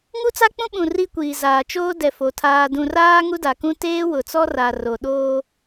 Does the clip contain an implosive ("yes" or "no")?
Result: yes